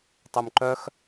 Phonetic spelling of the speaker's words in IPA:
tˤumǃœx

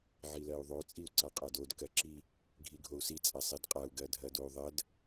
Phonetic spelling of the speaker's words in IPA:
ʕilɜu̯ðˤo t͡sʼiu̯ǀaqʼadod kɜǁi | ɡʱiɡʱou̯si t͡sʼasˤidqʼau̯ ɡɜdʱɜdou̯ðˤɜd

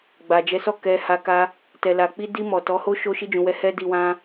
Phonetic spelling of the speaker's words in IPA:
ɡ͡ba˨d͡ʒɛ˨˦sɔ˦˨ kɛ˨ ha˧ka˦ | tɛ˨la˨ k͡pi˧di˧ mɔ˨ tɔ˨˦ho˦ ʃo˧ʃi˧d͡ʒũ˨wɛ˨˦ hɛ˦di˧wã˦

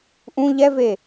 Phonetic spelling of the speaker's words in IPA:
ʔũ ʎɛve

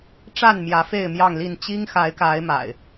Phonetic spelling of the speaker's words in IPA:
ʈ͡ʂa˥˨nmjä˨˦ fe˥˨ɪ̯ mjɑ˥˨ŋli˥˨n t͡ɕi˦ŋxa˨˦ɪ̯ka˨˦ɪ̯ ma̰˨˩ɪ̯

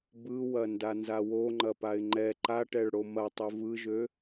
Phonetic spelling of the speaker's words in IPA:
bɯ wɐndanzawo ŋ͡ǃɐpaɪ̯ŋ͡ǃɛ ǃaʈɛɭɽo mɐ tˤøvɯʒø

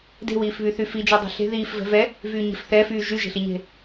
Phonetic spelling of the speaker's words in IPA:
de̤wiːfβy θyfid͡ʒe dˤe̤ɬe̤ ðiːf vɛ̤vɛ | vyːɲe̤fθɛfyː ʒyʒe̤ɬiɲe̤

